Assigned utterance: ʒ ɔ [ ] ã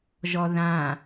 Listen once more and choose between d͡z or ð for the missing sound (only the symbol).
ð